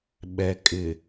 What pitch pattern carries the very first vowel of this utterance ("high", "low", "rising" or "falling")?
low